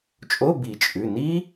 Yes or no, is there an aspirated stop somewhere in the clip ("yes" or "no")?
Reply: no